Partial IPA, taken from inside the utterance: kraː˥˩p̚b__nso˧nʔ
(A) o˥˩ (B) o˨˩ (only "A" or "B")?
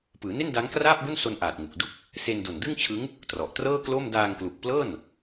A